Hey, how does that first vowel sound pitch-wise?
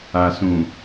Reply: low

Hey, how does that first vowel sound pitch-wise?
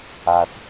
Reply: low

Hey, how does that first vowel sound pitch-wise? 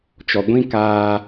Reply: low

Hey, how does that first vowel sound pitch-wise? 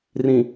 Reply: low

